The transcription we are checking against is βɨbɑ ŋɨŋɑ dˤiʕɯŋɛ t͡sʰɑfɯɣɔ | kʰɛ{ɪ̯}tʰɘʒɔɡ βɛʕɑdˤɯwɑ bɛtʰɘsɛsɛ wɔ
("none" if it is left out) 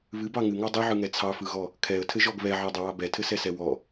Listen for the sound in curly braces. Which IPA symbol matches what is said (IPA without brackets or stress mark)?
ə̯